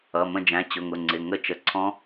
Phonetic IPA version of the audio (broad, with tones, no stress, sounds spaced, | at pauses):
ʌ˩˧˩ m ə̃˦˨ d͡ʒ æ̃˩˧˩ t͡ɕ ʊ˩˧˩ ŋ ʊ˩˧˩ ŋ͡ǀ ɪ˩˧˩ ŋ ə˦˨ t͡ʃ ə˩˧˩ ǀʰ ɔ̃˦˥